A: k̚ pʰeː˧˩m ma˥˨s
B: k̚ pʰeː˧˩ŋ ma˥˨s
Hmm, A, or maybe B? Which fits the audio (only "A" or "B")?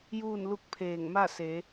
B